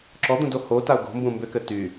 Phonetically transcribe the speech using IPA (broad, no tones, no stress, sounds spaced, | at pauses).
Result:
ǁ ɔ d̪ ũ d o h o t a ʊ̯ ɡ o̤ m b ũ m b ʏ k ɘ t y